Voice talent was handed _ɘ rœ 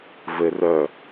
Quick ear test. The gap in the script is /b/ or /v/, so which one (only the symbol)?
v